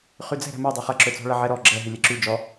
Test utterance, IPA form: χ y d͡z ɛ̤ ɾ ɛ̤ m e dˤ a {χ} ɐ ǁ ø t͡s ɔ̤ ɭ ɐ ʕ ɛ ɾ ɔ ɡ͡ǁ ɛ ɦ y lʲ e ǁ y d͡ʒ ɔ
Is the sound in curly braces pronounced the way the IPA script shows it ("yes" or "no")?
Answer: yes